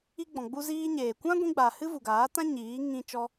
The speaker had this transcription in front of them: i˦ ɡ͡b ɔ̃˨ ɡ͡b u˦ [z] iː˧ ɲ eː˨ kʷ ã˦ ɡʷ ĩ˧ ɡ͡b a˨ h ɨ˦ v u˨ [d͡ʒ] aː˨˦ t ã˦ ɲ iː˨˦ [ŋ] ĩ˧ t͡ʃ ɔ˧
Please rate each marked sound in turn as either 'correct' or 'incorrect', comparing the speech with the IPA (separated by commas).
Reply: correct, incorrect, correct